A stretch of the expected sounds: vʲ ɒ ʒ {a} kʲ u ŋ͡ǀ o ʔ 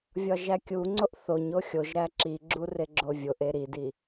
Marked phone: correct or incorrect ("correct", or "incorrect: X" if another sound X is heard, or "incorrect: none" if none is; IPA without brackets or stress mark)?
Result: incorrect: æ